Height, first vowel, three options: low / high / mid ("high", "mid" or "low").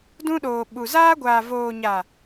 high